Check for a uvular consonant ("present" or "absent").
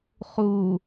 present